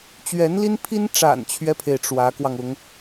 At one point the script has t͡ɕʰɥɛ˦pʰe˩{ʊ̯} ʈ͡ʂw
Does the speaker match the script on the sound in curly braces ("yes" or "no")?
no